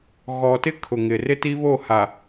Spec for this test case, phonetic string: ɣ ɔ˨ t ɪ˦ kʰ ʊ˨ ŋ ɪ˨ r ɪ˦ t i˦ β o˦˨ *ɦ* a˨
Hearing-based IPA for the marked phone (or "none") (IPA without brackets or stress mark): h